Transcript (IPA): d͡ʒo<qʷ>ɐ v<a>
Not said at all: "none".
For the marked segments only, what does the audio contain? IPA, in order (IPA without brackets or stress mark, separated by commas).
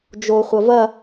χʷ, ɐ